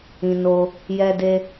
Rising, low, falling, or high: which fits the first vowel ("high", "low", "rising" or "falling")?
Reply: low